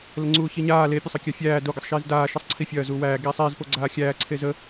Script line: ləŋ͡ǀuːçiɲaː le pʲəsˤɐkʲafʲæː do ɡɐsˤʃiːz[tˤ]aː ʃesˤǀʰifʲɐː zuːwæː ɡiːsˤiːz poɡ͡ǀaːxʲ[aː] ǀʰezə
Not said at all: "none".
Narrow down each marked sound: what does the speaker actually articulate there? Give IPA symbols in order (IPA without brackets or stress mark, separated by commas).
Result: d, æː